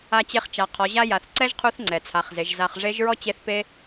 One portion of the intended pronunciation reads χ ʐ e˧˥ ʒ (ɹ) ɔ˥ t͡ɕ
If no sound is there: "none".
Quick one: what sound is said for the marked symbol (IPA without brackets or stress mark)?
ɹ